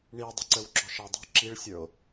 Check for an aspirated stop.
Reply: absent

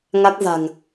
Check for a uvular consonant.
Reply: absent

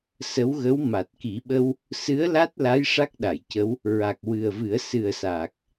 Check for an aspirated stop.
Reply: absent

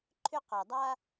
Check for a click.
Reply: present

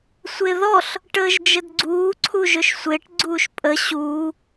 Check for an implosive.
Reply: absent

